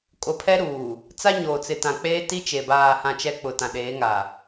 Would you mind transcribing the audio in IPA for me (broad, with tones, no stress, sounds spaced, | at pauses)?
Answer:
kʼ o˨ pʰ ɛ˦ ɾ uː˨ | t͡s a˦ ɲ oː˨ t͡s ɪ˨ t ã˨ k͡p eː˦ t i˦ t͡ʃ e˨ b aː˨ h ã˨ t͡ʃ ɛ˦ k͡p ʊ˨ t ã˨ ɗ eː˨˦ ŋ a˨